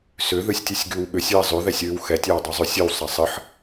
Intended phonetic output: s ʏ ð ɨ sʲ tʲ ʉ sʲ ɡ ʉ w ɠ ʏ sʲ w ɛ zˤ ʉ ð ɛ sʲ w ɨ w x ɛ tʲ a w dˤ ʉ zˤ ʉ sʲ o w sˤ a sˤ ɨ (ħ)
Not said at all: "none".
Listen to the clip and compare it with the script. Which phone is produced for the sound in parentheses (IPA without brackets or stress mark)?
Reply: ħ